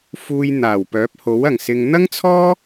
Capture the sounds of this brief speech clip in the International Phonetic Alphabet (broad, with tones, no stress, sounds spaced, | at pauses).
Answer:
f uː˨ j n̪ aː˨˩ w p œː˨˥ p̚ h o˨˥ w ɐ˨˩ ŋ s ɪ˨ ŋ n̪ ɐ˥ ŋ t͡sʰ ɔː˥